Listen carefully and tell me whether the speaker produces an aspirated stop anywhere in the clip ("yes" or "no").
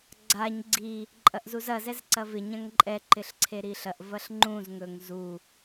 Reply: yes